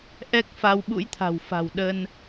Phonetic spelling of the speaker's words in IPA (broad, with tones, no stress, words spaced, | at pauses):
ʔɛ˦˥k̚ fa˧w ɓṵ˧˥jt̪ʰa̤˨˩w fa̤˨˩wɗə˧n